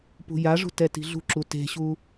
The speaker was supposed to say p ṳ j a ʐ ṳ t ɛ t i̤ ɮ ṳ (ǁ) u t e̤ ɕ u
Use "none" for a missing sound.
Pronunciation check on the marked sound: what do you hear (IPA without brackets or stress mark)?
ǁ